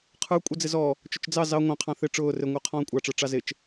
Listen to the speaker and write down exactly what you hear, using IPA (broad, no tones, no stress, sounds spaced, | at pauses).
qʰ ə˞ kʷʼ ə d͡z ɪ z ɔ | t͡ʃ ʊ t͡ʃ d͡z ɑ z ɑ ŋʷ ɑ̃ qʰ ɑ̃ θ ɪ ʈ͡ʂ ʊː r ɪ ŋʷ ə˞ qʰ ɔ̃ː kʷʼ ɑ ʈ͡ʂ ə˞ ʈ͡ʂ ɑ z ɪ t͡ʃ